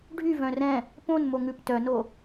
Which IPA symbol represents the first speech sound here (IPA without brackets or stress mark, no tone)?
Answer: ɖʱ